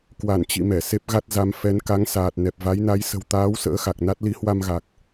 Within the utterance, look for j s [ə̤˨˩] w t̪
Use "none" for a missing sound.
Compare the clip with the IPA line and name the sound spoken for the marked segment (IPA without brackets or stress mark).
ə̤˨˩